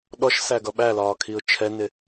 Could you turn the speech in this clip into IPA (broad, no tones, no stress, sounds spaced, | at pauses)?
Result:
ɗ ɔ ʃ s æ ɡ ʌ ɓ æ l ɒː kʰ i ʊ̯ t͡ʃʰ ɛ n ɪ